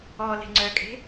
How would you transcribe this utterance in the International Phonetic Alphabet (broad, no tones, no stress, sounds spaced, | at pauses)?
ɔ l e̤ ŋ͡ǀ œ kʼ e̤